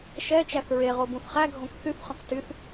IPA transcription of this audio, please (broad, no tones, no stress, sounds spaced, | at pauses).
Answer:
ʃ ɛ t͡ʃ æ θ ɹ e ʁ o b ũ θ χ æ ɡʱ õ k θ y θ χ œ̃ q t y θ